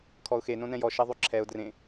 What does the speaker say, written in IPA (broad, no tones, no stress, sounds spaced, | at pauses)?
kʰ ɔ ʊ̯ x e n õ n ɛ̃ j ɔ ʃ e ðˤ y ǁʰ ɛ ʊ̯ d r ẽ